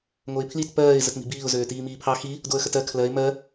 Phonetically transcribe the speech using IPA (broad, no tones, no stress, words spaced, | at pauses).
ŋoɪ̯pʰlit pɜːɪ̯ zətmi̤biːʊ̯ zøːtiːmiːpʰɑ xi | doə̯xətɜ kʰlɜɪ̯ mɜ